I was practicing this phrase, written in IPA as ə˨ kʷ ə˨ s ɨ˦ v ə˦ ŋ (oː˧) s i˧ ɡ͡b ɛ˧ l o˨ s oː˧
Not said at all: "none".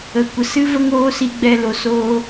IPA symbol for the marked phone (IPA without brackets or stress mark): oː˦